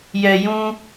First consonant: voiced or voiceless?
voiced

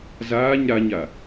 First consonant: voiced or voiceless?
voiced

